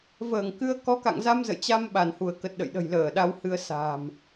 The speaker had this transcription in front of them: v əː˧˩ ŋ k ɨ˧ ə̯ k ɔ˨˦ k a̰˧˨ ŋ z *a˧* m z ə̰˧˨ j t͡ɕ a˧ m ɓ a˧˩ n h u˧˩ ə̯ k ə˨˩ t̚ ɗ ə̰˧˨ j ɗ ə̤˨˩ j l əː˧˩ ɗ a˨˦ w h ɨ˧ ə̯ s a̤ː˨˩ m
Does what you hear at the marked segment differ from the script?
no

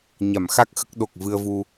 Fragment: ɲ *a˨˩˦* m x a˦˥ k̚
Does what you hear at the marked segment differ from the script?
yes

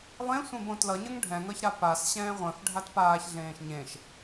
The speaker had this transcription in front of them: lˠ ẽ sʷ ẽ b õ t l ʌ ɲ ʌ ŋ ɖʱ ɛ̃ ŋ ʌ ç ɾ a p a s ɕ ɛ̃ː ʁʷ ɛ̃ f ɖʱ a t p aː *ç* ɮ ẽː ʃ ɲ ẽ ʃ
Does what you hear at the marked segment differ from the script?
no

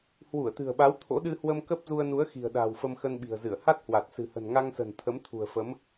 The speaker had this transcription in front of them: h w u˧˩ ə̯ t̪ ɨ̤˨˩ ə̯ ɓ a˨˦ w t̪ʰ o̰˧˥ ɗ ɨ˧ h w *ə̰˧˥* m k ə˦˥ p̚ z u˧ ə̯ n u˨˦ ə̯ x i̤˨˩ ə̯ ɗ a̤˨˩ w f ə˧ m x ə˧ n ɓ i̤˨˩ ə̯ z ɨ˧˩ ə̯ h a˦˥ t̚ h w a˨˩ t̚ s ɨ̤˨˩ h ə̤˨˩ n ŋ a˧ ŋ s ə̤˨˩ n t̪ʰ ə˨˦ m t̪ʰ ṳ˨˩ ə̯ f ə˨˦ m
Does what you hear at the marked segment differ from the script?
yes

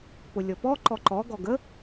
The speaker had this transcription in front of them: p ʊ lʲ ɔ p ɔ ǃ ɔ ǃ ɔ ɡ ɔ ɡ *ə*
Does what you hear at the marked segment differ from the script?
no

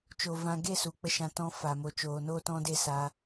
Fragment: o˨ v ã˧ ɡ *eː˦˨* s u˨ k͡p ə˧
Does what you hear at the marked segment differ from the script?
yes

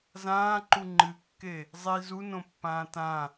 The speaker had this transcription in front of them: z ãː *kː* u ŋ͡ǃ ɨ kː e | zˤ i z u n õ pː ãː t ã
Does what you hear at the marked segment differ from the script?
yes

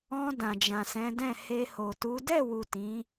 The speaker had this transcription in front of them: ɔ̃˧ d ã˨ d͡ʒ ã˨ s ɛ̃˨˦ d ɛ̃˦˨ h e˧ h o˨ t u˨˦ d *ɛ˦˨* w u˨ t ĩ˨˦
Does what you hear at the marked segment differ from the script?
no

